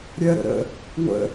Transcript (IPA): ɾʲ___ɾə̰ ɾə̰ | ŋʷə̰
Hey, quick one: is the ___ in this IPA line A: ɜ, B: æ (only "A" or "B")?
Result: A